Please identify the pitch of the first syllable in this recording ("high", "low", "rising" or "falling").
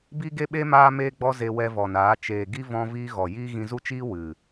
high